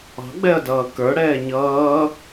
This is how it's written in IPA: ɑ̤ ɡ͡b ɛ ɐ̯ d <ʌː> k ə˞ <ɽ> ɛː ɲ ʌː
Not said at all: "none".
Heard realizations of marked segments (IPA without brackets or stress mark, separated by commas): ʌː, ɽ